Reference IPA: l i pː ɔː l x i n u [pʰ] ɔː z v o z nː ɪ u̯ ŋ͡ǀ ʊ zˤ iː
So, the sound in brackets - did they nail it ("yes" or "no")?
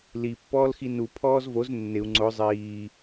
yes